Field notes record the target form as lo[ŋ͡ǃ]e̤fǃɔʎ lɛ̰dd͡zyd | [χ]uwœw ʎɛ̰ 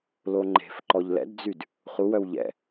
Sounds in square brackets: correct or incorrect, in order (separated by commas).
correct, correct